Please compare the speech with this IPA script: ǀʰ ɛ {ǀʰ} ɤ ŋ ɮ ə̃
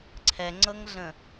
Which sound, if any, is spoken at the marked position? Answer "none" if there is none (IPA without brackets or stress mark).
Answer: ŋ͡ǀ